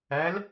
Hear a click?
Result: no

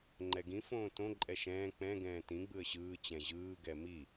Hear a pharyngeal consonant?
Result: no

